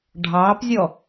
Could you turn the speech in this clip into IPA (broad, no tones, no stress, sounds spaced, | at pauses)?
ɖʱ ɑ p zʲ ɔ